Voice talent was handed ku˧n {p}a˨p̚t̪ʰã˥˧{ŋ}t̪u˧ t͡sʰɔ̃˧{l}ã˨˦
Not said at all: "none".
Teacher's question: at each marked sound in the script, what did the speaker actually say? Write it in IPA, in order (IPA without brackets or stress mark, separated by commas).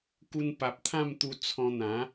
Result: p, m, n̪